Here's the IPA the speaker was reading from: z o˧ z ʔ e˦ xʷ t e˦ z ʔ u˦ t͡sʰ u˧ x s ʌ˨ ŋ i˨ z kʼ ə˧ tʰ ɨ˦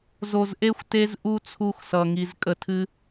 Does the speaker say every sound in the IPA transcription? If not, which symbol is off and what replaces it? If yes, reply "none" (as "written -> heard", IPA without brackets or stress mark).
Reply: none